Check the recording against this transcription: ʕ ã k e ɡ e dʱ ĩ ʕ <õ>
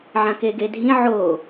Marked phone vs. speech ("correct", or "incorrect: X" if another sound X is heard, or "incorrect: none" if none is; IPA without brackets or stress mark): incorrect: o